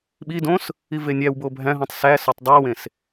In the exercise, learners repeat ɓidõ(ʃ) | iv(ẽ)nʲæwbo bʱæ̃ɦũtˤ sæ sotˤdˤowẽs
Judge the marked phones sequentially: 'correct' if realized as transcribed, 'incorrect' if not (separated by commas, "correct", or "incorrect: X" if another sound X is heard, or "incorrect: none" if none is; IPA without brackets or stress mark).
incorrect: s, incorrect: e